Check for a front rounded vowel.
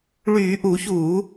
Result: present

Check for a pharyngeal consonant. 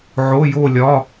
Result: present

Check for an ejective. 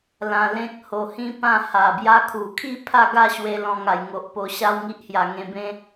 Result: absent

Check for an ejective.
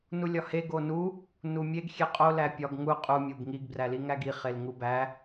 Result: present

